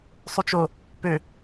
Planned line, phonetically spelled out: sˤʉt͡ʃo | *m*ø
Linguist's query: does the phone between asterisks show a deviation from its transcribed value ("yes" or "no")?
yes